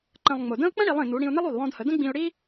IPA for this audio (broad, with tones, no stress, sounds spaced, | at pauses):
ǃ ə̃˧ lˠ ŋ͡m ʊ˩ d ə̃˥ ʊ̯ k͡p ə̃˥ ɽ i˩˧ lˠ ĩ˩ n u˩˧ ɽ ĩ˧ ʊ̯ n ə˥ lˠ u˩ lˠ w ɔ̃˧ d h ə˩˧ d ə̃˥ ɡ͡b ĩ˧ ʊ̯ ɽ i˥